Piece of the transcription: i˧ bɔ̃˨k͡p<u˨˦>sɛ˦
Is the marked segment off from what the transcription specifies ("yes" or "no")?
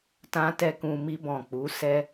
no